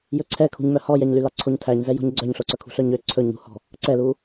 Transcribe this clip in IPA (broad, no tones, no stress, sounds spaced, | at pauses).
j ɵ ǀʰ ɛ kʰ ṳ ɲ m œ h ɔ j ɛ ɲ l y l ɑ ǀʰ o ɲ tʰ æ ɲ z ɛ j ɔ̤ ɲ ɡ͡ǀ œ ɲ ɬ o ǀ œ kʰ ṳ ɬ œ ɲ ø ǀʰ ɵ ɲ ṳ h ɔ̤ | ǀ ɛ l u